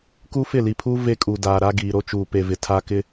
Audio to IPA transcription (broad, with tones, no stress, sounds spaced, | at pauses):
k u˦ f ɪ˦˨ l i˨ pʰ uː˦ v e˦ kʼ u˨ d aː˨ ɾ a˦ ɡ iː˨ ɾ o˦ t͡ʃ uː˨ p e˨ v ɪ˨ tʰ a˦ k ɪ˦